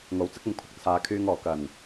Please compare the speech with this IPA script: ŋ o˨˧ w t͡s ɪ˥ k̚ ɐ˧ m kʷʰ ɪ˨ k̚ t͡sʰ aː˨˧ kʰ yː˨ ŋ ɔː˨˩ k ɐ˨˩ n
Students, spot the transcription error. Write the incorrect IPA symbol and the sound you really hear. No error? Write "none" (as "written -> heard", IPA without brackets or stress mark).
none